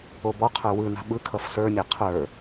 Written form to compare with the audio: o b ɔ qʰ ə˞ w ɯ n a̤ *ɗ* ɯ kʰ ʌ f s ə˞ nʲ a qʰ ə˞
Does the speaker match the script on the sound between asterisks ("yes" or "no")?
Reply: no